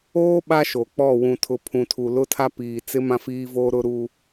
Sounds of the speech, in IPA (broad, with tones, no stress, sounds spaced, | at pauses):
oː˦ ɓ a˦ ʃ o˨ k͡p ɔ˦˨ w ũ˨ tʰ ʊ˨ pʰ ũ˨ tʰ u˨ l ʊ˦ tʰ a˦ p iː˨ t͡s ɪ˦ m ã˦ f iː˦ v oː˦ ɾ ʊ˦ ɾ u˦